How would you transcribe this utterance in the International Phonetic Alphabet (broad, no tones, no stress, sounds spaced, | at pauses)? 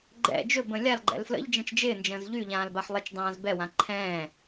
ɡ͡ǃ ɛ̰ d͡ʒ ɵ b ə̃ lʲ a l ɡ͡ǃ ɛ̰ l f l ə̰ ʎ d͡ʒ ɛ̃ t͡ʃ d͡ʒ ɪː n d͡ʒ ə̃ː z ʎ y ʎ ãː l b a ħ lˠ ɪ t͡ʃ dˤ ãː z b ɛ w ã ǃʰ ɛ̃ː